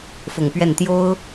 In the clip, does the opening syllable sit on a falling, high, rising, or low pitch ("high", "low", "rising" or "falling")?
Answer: low